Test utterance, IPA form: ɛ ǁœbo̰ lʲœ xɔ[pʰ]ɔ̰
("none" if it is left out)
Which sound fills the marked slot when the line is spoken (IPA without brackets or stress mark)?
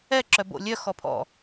pʰ